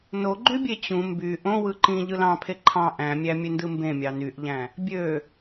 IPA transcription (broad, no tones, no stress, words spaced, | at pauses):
noɡ͡ǃybʲe t͡ɕũ mby ʔõ wɯǃĩ ʎɯlɑ̃pʰe ǃʰɑ̃ ʔæ̃mʲæ mʲøndɯmbẽ mʲɑnyʔʎæ̃ | bʲø